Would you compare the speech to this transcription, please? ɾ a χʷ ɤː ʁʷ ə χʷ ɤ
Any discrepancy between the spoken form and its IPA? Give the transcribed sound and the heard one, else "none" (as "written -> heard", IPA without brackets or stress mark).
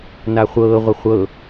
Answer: ɾ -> n